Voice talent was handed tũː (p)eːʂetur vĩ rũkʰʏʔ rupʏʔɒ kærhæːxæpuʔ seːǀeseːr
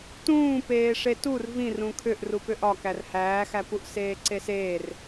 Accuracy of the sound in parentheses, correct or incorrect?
correct